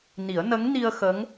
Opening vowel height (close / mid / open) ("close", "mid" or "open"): close